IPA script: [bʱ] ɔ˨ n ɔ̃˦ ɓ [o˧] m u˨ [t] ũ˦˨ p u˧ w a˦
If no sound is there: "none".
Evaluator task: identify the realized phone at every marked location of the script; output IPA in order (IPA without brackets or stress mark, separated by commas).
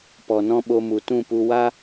p, o˧, t